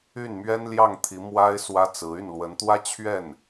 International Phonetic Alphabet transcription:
y˥˩ n m ɥ ɛ˥ n l j ɑ˥˩ ŋ t̪ʰ i˧˥ m w a˥ ɪ̯ s w ä˥ t͡s ɹ̩˧˥ y˥˩ n l w ə˧˥ n t̪ w ä˥ t͡ɕʰ ɥ ɛ˥˩ n

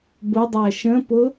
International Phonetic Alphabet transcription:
b ʊ dˤ æ ʃ ə̃ p ʊ

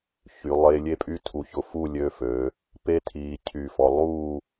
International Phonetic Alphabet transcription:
ç y˩˧ lˠ e˧ lʲ e˥˧ pʼ y˥ tʰ u˧˩ ç ʊ˧ f u˥˧ lʲ ø˧ f øː˩˧ | p e˥ tʰ iː˧ cʰ y˧˩ f ɔ˧ lˠ uː˥˧

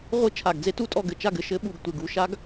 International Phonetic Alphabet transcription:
ʁʷ ɨ˦˨ t͡ʃʰ a˨˩ ɡ d͡z e˦˥ t u˦˨ tʼ ɔ˦˨ ɡ ɘ˨˩ t͡ʃ a˦˨ ɡ ɘ˨˩ ʃ ɘ˦˥ ɓ u˨˩ ɡ tʷ e˨˩ ɡ u˦˨ ʃ a˦˥ ɡ

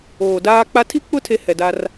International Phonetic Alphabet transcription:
oː˨ d aː˦ k͡p a˦ tʰ i˦ k͡p ʊ˦ tʰ e˦ h ɛ˨ d a˦ r

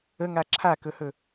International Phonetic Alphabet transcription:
ə ŋ a ǁʰ a k ɵ h ɵ

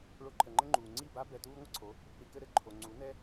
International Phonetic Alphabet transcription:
ɭ o˧ ǃʰ ə˨ ŋ͡ǃ ə˦ ŋ͡ǃ uː˨ ŋ͡ǀ i˦˨ b a˦ b ɛ˧ t uː˦ ŋʷ ə˦ ǀʰ o˨˦ | ɾ i˧ k ɘ˦ ɾ ɘ˦ ǃʰ o˨ ŋ͡ǀ u˨˦ n ɛ˦

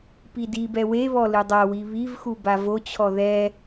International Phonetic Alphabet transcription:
p i d i b ɛ w e β ɔ l ɨ dˤ a w i β i v x u b a v o t͡ɕʰ ɔ ð ɛ

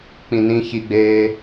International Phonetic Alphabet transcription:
k͡p ĩ n ĩ ç i ɡ͡b eː

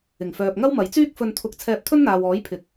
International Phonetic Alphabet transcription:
ɪ˨˩ ŋ f œː˨ p̚ ŋ ɐ˥ w m ɐ˨˥ j t͡s yː˥ k̚ f ɵ˧ n t̪ʰ ʊ˧ k̚ t͡sʰ ɛː˧ p̚ t̪ʰ ɵ˥ n n̪ aː˨ w ɔː˨˥ j pʰ ɪ˨˥ k̚

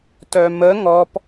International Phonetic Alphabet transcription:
t œ m ə ŋ ɔ p

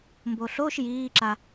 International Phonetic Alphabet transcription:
m b o ɬ o ʃ j iː ǁ a

